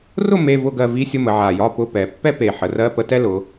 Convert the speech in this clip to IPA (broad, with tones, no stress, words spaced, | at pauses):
rʊ˥˨ me˧˥˧vʊ˥˨ɡɜ˥˨ vi˧˥˧sʲʊ˧˥˧mə˩˧ ʕa˨˩jɒ˧˥˧pʊ˧˥˧pɛ˩˧ pːɛ˥pe˨˩ħə˩˧rɜ˧˥˧ pə˧˥˧tɛ˥lʊ˩˧